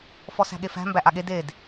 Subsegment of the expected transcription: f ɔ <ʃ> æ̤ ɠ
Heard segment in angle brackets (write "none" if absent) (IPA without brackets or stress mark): s